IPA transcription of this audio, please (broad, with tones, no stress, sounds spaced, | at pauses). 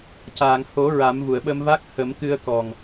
c aː˨˩˨ ŋ h o˨˩˦ ɹ a˨˩˦ m v u˨˩˨ ə̯ ɓ ə˧ m v a˦˥ k̚ h ə˨˩˦ m k ɨ˧ ə̯ k ɔ˨˩ ŋ